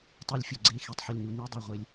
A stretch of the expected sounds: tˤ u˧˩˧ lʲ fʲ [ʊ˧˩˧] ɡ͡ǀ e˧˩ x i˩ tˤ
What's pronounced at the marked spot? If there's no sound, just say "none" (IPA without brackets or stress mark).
ʊ˩